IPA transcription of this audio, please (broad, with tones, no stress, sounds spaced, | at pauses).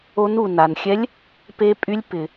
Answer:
o˧˥ n u˩ n a˩ n xʲ ɛ˧˥ lʲ | p e˧˥ pʼ y˧˥ lʲ p ɪ˩